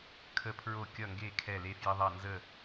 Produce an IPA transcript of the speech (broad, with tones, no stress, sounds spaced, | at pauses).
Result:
kʰ ə˥˨ pʰ ɹ o˥˨ kʲ ʌ˥˨ ŋ ɡ e˥˨ kʰ ɛ˥˨ l e˥ f j ə˥ ðˤ ʌ˥˨ n z ə˥˨